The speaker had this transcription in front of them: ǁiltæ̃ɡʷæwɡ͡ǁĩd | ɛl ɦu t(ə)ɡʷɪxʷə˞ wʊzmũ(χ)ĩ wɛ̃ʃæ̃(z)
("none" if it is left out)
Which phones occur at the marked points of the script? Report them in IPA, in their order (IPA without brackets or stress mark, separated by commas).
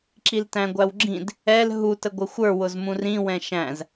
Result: ə, r, z